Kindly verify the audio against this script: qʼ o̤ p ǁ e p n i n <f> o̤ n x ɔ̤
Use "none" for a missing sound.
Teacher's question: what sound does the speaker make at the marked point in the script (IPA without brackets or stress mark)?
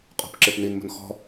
m